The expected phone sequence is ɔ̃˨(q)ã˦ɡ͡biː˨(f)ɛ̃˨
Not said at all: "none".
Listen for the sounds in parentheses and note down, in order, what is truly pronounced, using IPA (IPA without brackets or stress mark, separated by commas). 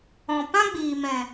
p, m